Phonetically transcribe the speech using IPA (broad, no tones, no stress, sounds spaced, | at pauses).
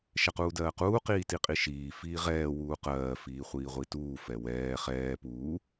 ʃ ɛ q uː d ɜː q uː q iː t i qʼ i ʃ iː f iː ʁ ɛː w uː q ɜː f iː χʷ iː ʁʷ i t uː f ɛ w ɛː χ ɛː p uː